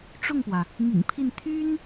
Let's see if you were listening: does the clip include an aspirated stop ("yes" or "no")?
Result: yes